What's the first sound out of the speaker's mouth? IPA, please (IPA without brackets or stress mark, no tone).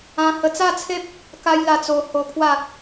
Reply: ã